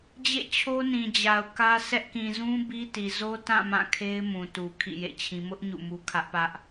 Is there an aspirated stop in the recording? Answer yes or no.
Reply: yes